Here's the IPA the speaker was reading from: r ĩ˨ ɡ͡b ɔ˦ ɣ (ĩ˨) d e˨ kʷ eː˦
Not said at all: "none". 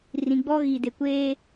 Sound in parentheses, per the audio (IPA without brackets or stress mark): i˨